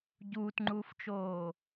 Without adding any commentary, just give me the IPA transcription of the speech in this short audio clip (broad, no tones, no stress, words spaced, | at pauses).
ɟuːtŋ͡ǃuːft͡ʃoː